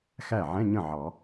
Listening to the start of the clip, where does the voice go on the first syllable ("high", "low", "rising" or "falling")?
falling